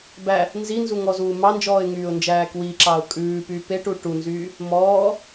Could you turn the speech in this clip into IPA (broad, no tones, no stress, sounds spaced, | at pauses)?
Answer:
b æ | n z i n z u ŋ ɔ z uː m ɑ n d͡ʒ ɔː ɪ̯ ŋ yː ʊ̯ n d͡ʒ æː k w i ǁ ɑ ʊ̯ kʼ ʉː p yː p e ʈ u ʈ u n z yː | m ɔː